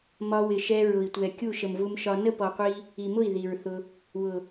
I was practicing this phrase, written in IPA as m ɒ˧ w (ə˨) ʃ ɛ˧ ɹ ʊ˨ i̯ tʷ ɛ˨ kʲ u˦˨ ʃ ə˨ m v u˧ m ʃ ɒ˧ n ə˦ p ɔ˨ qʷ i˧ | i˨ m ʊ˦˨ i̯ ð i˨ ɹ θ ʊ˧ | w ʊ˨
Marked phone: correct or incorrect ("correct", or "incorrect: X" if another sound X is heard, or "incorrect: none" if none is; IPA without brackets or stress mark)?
incorrect: ɪ˨